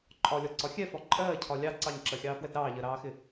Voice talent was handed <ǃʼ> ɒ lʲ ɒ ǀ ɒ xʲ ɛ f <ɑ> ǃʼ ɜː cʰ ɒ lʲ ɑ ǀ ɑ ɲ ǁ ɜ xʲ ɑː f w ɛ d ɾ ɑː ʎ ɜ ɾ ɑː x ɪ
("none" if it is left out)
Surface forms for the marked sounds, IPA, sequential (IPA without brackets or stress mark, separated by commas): ǃʼ, ɒ